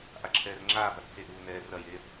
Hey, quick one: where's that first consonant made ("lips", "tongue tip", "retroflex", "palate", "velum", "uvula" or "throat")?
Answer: throat